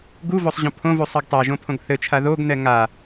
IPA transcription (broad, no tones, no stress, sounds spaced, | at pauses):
ɡ u v o sˤ ʑ õ pʰ õ v u sˤ ɛ ɡ tˤ a ʒ õ pʰ õ ɡ θ ɘ t͡ʃʰ a ð o ɡ n̪ ɛ ŋ a